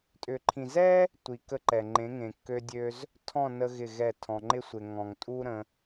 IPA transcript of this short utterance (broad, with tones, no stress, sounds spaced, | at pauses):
tʼ ʏ˨ ǃʰ ĩ˨ z ɛ˦ | tʷ i˨ k ə˧ ǃ ɛ˨ ŋ͡ǃ ẽ˨˦ ŋ ẽ˨ kː ø˧ dʲ ø˦ z | tʰ ɔ̃˦˨ n ə˧ ɣ ɪ˦˨ ɣ ɛ˦˨ tʰ ɔ̃˧ ŋ͡ǃ ɪ˦ sʷ ɪ˨ ŋ ɔ̃˨ ŋ tʼ u˦ ɾ ə̃˦